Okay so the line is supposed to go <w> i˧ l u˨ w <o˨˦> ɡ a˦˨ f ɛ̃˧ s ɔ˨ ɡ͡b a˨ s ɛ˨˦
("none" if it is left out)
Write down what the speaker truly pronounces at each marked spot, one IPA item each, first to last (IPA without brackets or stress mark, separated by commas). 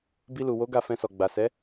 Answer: b, o˨˦